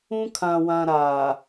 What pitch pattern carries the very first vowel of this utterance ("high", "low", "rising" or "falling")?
high